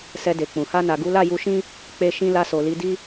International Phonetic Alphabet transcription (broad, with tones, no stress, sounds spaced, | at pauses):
s ɛ˧ d e˨ k͡p ũ˨ h a˧ n a˨ ɡ u˨˦ l a˦˨ j u˧ ʃ ĩ˦ | k͡p e˧ ʃ ĩ˧ l a˧ s o˨ l i˨˦ d i˦